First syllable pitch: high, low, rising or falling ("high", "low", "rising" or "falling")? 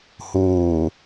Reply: low